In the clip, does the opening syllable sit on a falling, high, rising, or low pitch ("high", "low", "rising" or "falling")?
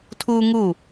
high